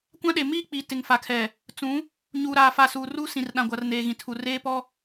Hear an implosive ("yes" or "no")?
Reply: yes